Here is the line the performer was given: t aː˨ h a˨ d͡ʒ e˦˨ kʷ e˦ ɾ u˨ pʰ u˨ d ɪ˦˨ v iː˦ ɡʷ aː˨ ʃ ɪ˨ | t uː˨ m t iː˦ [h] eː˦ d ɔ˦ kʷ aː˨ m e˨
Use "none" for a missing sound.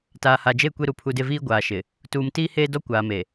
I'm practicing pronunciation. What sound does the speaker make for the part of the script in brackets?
h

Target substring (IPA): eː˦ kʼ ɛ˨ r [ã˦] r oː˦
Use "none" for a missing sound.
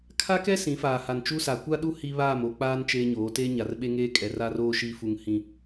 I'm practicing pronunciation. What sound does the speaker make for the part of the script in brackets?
a˦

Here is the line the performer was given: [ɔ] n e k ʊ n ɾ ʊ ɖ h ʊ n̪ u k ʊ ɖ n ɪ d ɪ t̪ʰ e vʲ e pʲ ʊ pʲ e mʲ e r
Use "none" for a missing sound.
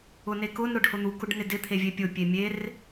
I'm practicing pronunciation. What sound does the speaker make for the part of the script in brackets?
ʊ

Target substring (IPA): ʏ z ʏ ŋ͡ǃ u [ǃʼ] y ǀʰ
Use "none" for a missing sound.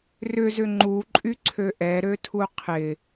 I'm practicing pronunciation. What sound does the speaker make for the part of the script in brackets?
ǃʼ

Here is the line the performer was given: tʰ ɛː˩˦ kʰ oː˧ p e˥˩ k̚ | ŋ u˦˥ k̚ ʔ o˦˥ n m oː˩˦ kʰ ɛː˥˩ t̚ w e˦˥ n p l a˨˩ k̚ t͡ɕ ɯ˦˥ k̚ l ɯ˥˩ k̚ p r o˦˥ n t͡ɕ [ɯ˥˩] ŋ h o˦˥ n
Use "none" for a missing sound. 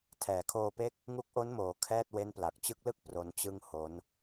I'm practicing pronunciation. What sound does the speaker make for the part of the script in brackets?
ɯ˥˩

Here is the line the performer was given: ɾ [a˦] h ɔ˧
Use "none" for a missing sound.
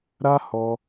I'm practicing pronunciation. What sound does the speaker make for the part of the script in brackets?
a˦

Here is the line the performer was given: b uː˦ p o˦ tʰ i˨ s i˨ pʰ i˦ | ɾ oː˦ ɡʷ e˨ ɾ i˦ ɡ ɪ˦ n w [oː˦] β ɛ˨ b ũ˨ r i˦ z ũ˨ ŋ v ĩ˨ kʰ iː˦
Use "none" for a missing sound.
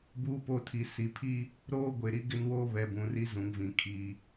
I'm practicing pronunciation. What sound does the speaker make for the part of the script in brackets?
oː˦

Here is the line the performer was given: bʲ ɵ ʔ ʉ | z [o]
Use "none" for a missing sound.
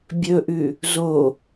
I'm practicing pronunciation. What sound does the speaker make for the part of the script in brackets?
o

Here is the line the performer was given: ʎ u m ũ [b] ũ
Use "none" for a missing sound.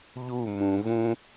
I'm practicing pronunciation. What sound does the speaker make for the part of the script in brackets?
v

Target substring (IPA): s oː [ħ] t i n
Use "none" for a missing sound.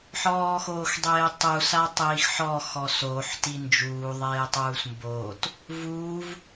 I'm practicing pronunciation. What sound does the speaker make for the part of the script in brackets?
ħ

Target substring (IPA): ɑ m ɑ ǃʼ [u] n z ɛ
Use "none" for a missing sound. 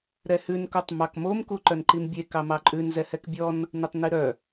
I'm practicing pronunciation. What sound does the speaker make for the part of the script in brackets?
ʉ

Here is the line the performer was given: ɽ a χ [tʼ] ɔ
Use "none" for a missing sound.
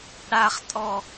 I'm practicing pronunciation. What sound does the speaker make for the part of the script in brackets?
tʼ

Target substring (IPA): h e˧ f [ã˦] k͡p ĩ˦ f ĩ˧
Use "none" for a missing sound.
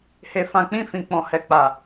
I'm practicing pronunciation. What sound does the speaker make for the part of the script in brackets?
ã˧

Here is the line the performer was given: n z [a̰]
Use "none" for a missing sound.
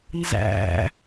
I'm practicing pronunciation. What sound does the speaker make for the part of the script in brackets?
æ̰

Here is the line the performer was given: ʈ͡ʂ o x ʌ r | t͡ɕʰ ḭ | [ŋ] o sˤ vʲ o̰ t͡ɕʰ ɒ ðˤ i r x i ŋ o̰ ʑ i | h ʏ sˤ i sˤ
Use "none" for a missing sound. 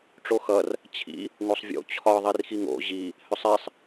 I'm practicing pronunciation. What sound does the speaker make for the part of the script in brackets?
ŋ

